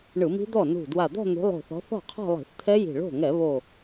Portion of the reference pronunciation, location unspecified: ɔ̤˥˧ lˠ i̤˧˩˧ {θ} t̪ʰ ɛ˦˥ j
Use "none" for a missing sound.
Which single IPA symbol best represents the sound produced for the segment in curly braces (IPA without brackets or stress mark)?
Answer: θ